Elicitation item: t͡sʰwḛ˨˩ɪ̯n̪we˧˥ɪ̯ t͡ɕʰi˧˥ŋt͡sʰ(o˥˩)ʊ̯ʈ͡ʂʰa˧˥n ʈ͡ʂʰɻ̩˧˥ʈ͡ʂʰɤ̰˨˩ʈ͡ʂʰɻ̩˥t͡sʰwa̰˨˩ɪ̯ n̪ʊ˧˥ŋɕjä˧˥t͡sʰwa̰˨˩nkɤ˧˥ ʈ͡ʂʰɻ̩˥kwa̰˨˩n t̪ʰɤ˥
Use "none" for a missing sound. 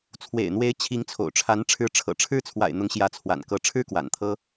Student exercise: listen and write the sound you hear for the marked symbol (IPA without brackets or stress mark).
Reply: o̰˨˩